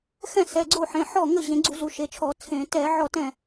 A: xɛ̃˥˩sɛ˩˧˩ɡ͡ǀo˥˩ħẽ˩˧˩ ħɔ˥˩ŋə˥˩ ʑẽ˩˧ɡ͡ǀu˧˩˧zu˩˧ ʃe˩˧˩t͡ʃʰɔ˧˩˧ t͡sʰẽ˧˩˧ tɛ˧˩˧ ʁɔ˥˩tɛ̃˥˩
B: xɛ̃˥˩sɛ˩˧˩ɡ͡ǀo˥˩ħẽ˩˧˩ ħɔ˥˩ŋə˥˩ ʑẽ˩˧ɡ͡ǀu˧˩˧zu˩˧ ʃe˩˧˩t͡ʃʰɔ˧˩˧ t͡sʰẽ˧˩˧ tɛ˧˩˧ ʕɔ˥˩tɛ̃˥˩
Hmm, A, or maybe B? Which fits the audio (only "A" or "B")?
B